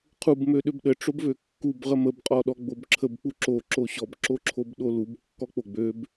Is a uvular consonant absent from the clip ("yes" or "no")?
no